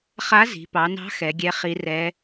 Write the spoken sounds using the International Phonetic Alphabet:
χ a˧˥ z i̤˩˧ p ɑ˩˧ n ɑ̤˧˥ x ɛ˩˧ ɡʲ ɛ˧˥ χ i˧˥ r ɛ˧˥

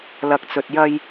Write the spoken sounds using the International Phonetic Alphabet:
l ɐ˨ k̚ t͡s ɵ˨ t̚ j ɐ˧ j

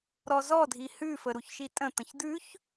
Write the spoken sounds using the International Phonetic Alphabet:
ɾ ɔ z ɔ dʱ i h ʉ f ə ɾ u ç ʃ i tʼ ə̃ t̪ ə̃ ç d̪ ʉ ç

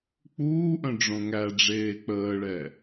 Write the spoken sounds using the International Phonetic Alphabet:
k͡p uː ʔ œ̃ ɖ͡ʐ õ ŋ æ ɖ͡ʐ eː k͡p əː ɭ ɛ

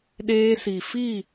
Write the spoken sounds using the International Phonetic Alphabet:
ɗ eː˦ s i˨ f i˦˨

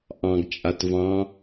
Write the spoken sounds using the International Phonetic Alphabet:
ʔ ɑ̃ ɡ t͡ʃʼ a t v ɑ̃

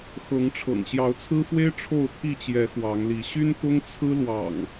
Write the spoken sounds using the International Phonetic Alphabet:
x ɤ˨˦ ŋ ʈ͡ʂʰ ɤ̰˨˩ ŋ ɕ j ɑ˨˦ ʊ̯ t͡sʰ ɹ̩˦ f w e˦ ɪ̯ ʈ͡ʂʰ o˥˨ ʊ̯ t̪ʰ i˥˨ t͡ɕ j ɛ˨˦ x w ɑ˨˦ ŋ l i˨˦ ɕ y˦ n t̪ ʊ˦ ŋ t͡sʰ ɹ̩˦ l w ɑ̰˨˩ ŋ

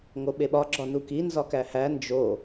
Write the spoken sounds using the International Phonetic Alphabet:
ŋ o ɓ e ɓ ɒ ɡ͡ǁ ɒ n u k i n z ɒ k æ h æ n d͡ʒ o

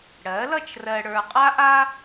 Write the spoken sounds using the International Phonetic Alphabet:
ɽ ɜ˩˥ l ʌ˥˨ t͡ʃ r ɜ˨ ɽ ə˞˨ qʼ a˥ ʔ a˥

